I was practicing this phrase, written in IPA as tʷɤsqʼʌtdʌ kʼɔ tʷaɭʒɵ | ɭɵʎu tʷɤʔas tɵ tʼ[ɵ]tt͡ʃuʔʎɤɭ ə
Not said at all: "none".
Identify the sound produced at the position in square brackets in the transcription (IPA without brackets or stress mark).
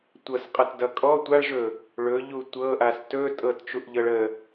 ɤ